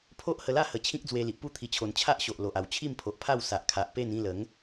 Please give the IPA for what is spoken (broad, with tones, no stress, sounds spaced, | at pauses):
pʰ o˦ ʔ h ə˧ l a˥˧ h ə˨˩ t͡ɕʰ ĩ˦ k̚ d͡z w e˧ l i˨ ʔ p u˥˧ t̪ʰ i˨˩ t͡ɕʰ o˨˩ n t͡ɕʰ a˦ ʔ ɕ o˨ ʔ l o˨ ʔ a˨˩ w t͡ɕʰ i˥˧ m pʰ o˨ ʔ pʰ a˥˧ w s a˨ ʔ kʰ a˨ ʔ p e˥˧ n ĩ˥˧ l ə˨˦ ŋ